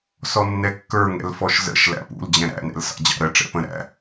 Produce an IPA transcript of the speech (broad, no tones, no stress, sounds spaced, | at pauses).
s ɔ nː ɛ kː ə˞ ŋ ɛ̰ l f ɔ ʃ z ə̰ ʃ l æ̰ p ṵ l d͡ʑ ɛ̃ ɾ æ̰ n ɛ̰ l s ɑ̰ d͡ʑ ɑ̰ ɾ ə ʈ͡ʂ ɛ̰ p ə̃ ɾ æ̰